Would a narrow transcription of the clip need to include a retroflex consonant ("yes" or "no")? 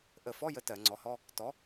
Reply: no